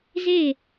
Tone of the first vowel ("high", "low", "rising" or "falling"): falling